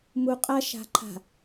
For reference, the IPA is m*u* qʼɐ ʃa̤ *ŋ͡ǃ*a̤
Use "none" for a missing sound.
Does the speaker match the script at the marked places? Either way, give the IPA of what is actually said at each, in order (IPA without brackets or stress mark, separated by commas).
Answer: u, ǃʰ